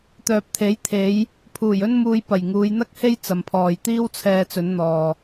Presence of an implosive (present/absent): absent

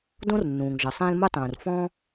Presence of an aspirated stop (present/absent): absent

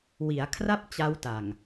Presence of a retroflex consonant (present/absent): absent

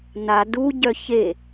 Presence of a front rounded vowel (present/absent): present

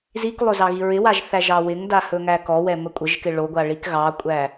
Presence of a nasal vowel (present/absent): absent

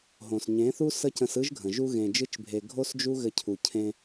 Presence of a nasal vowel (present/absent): present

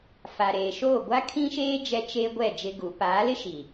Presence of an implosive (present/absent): absent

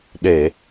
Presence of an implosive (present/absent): present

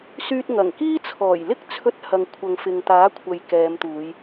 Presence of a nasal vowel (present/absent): absent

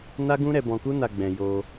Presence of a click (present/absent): absent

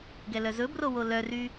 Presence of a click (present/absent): absent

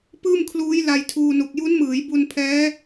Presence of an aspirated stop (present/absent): present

